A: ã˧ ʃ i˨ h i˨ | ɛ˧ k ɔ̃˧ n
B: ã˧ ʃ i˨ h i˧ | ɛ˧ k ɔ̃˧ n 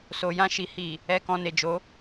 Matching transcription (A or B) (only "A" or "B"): A